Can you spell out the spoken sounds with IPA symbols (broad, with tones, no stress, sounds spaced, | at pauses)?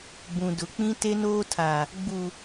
b ũ˨ d ʊ˨ k͡p ĩ˦ t e˦ n oː˦ tʰ a˨ | ɡ͡b u˨